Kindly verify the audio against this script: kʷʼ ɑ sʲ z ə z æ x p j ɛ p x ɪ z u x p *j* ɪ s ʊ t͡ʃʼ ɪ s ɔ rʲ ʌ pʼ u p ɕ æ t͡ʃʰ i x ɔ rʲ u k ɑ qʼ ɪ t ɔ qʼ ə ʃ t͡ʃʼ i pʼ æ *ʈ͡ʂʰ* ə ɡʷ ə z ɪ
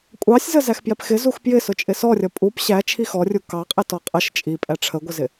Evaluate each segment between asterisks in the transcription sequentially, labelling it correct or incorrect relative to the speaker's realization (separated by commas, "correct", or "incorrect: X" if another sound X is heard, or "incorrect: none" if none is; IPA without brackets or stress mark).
correct, correct